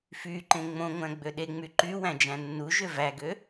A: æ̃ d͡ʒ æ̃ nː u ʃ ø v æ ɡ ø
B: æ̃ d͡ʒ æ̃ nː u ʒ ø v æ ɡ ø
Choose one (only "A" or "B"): B